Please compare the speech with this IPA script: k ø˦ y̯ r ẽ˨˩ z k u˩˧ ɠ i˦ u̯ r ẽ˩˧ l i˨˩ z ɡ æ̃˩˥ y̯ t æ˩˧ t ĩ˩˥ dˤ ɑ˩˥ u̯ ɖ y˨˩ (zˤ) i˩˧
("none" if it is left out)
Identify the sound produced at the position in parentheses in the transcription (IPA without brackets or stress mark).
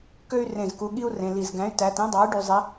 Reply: zˤ